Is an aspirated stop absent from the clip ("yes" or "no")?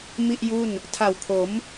no